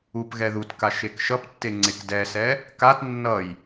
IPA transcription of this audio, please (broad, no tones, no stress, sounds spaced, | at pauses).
u p ɣ ɛ ð u t k a ʃ e k ʃ ʌ p tː e ŋ͡ǀ e k d ɛ s ɛ | k a t nː ʌ j